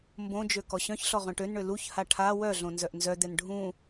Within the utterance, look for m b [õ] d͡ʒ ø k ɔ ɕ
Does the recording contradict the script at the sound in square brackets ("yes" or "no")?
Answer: no